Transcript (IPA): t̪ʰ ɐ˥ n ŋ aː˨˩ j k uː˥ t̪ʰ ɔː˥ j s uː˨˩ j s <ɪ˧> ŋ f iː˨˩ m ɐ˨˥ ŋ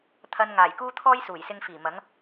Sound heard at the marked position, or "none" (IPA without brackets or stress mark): ɪ˧